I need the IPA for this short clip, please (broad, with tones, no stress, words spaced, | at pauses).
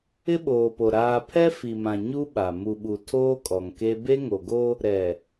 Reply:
ɪ˦ɓoː˨po˨ ɾaː˦ pʰɛ˦fi˨mã˨ ɲu˦ɓa˨ mu˨ɓu˨ tʰoː˦kʼɔ˨ŋke˦ be˦ŋo˨ɡo˦ | ɾɛ˨